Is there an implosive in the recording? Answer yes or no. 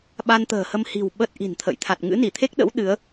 yes